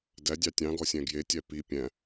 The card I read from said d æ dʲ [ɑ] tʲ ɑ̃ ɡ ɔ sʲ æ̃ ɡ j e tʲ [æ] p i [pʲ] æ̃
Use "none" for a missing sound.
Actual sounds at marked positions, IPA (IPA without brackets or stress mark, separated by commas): ɑ, æ, pʲ